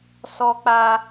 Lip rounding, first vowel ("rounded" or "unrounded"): rounded